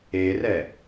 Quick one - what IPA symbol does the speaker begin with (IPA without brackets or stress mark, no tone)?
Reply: e